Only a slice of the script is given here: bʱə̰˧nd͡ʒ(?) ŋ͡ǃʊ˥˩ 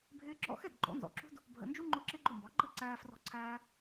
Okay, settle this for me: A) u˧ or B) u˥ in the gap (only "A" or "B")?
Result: B